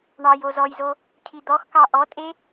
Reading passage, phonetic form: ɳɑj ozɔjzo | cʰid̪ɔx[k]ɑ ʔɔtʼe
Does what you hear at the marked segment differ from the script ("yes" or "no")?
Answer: no